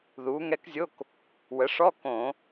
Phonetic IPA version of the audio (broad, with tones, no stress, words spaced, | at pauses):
ðuː˩˥ŋɛ˧˥kzʲo˧˥˧k | wə˩˥ʂɔ˧˥˧ kõ˧˩˧